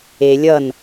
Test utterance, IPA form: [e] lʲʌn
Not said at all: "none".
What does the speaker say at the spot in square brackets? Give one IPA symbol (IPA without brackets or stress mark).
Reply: e